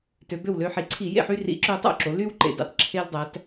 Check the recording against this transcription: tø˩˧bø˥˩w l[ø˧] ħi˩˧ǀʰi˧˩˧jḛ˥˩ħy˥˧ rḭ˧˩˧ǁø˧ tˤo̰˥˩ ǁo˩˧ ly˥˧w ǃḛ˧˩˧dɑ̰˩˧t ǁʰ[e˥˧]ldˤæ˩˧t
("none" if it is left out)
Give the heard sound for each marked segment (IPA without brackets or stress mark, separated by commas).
ø˧, e˧